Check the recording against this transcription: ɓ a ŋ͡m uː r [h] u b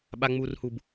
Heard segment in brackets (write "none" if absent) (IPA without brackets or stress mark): h